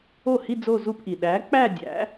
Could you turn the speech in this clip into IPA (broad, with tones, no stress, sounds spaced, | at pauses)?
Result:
o˥˩ h i˥˧ d͡z o˥˧ z u˥˧ p ʔ i˩ ɗ æ˨˥ k͡p æ˥˧ dʲ æ̰˨˥